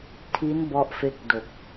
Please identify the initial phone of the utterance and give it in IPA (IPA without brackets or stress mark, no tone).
tʰ